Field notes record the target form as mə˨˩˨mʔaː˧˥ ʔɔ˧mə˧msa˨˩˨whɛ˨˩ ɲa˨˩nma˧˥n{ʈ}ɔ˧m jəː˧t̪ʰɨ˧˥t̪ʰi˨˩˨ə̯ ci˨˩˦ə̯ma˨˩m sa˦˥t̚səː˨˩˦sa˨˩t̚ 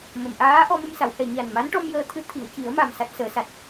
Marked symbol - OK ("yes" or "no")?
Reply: yes